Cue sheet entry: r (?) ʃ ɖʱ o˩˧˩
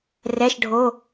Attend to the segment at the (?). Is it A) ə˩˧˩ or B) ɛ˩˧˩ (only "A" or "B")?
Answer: B